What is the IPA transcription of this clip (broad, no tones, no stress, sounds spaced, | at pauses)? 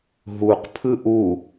ɦ u q pʰ ɯ ʔ u